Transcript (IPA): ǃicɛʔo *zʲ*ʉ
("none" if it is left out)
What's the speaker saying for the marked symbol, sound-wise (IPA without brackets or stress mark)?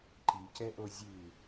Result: zʲ